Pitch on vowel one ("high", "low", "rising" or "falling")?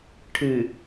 low